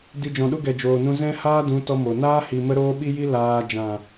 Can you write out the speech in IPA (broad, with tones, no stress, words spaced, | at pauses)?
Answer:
di˧ d͡ʒɔ̃˨ɗu˦ɡɛ˨ d͡ʒoː˨nũ˧ zɛ̃˦haː˦dũ˨˦ tɔ˦mo˨ naː˦hi˨ mə˦ɾoː˦ɓi˦ji˦ laː˧ d͡ʒã˨